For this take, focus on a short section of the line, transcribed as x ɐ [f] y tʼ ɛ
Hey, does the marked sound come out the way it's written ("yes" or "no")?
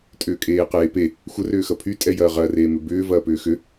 no